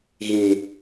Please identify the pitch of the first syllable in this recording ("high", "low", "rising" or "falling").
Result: low